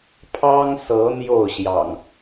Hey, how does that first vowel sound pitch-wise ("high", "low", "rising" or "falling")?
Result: high